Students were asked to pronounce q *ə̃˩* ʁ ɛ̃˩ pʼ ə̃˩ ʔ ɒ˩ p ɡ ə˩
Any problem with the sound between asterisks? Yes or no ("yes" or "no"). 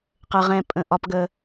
yes